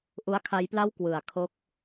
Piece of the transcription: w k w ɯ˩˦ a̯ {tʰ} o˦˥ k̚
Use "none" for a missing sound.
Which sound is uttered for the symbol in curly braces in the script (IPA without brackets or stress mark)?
kʰ